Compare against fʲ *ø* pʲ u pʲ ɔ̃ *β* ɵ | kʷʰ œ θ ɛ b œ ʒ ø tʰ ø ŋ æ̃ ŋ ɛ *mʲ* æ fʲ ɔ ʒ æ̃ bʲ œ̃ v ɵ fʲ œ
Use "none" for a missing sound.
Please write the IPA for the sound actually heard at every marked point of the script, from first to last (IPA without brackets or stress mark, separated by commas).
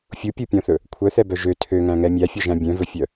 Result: u, θ, mʲ